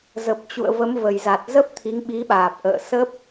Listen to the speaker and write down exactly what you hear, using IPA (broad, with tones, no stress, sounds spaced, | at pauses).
z ə˨˩ p̚ t͡ɕ ṵ˧˨ ə̯ v ə˨˦ m v ə˨˩ j z a˨˩ t̚ z ə˦˥ p̚ t̪ʰ i˨˦ ŋ ɓ i˨˦ ɓ aː˨˩ p̚ ʔ ə̰ː˧˨ s ə˦˥ p̚